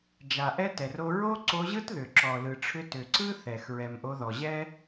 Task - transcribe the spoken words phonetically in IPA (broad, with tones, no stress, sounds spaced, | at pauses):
d͡ʒ a˨ ʔ ɛ˦ t ɛ˨ r o˧ ɹ o˦ ǀ o˧ ʑ ɯ˦ t ð ʏ˨ ǁ ɔ˨ l ɯ˨ ʈ͡ʂʰ ʏ˧ t ʏ˨ ǀ ɯ˦ θ ɛ˨ x ɹ ɛ˨ m ʔ o˧ ð ɔ˨ ʑ ɛ˦